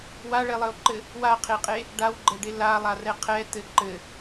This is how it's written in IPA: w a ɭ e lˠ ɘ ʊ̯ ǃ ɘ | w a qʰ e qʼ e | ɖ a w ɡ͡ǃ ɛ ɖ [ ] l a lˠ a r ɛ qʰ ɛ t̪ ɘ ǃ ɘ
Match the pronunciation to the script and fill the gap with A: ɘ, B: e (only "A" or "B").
B